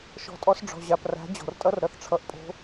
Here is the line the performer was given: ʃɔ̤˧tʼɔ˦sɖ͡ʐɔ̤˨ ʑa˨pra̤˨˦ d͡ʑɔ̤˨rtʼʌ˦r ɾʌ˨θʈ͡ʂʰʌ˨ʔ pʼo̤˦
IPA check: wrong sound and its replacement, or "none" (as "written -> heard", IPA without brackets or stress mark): none